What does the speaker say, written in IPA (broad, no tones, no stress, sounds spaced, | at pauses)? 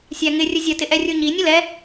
sʲ æ ŋ ɪ rʲ ə zʲ ə t ɪ ʔ ɛ rʲ u ɲ i nʲ ə l ɛ